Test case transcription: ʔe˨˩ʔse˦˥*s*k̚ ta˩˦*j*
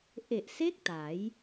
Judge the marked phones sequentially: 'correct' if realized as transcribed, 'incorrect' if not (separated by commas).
incorrect, correct